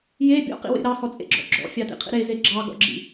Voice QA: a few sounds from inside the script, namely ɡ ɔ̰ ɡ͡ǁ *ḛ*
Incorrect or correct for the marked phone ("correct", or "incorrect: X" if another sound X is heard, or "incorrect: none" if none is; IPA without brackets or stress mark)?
incorrect: ḭ